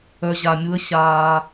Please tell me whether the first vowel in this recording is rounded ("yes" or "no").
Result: yes